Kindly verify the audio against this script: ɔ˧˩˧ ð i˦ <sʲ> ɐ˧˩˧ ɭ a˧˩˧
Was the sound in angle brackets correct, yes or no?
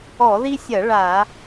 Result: yes